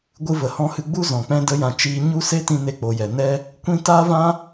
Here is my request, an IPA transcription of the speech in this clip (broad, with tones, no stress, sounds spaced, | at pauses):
ɡʷ ɨ˧ v ə˨ h ɔ̃˧ h ɨ˧ ɡ͡b u˦ z ɔ̃˨ k͡p ɛ̃˧ d ə˦ j ã˧ t͡ʃ iː˦ ɲ u˦ s e˦ t ĩ˧ n e˧ k͡p o˨ j ɛ˨ n ɛ˦ | kʷ ĩ˦ t aː˦ v ã˦